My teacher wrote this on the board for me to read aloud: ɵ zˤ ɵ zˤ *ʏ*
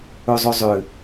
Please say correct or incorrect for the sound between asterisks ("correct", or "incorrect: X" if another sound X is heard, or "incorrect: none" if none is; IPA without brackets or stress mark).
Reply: correct